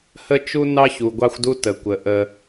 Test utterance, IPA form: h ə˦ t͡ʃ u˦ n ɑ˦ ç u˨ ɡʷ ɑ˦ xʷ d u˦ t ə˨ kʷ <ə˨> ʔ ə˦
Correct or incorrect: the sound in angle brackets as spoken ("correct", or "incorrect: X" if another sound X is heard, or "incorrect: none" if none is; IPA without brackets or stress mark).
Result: correct